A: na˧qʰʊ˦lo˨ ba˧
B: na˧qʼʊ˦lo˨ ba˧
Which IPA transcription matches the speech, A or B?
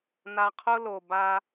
A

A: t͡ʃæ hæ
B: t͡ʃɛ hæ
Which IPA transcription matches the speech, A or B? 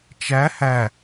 A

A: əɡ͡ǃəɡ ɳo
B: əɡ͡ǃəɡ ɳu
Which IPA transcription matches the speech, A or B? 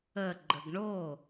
A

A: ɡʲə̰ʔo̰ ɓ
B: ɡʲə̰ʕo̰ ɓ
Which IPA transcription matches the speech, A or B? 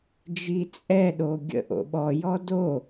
A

